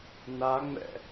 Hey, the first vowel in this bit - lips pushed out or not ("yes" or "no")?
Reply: no